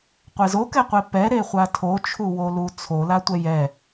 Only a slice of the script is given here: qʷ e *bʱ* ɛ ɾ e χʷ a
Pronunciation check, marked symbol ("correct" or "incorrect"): incorrect